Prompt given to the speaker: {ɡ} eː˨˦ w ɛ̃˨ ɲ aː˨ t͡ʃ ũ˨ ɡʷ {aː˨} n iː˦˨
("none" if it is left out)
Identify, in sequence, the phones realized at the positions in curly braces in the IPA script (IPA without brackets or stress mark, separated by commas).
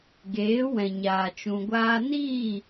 ɡ, aː˧